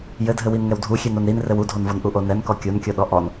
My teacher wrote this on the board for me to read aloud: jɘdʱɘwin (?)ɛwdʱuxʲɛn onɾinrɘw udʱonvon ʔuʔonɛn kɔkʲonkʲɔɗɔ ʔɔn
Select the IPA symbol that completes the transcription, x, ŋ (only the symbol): ŋ